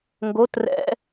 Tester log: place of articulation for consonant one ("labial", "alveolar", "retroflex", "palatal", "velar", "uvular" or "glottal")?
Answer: velar